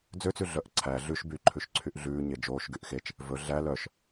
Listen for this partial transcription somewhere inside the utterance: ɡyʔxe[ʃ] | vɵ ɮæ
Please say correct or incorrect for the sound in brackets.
incorrect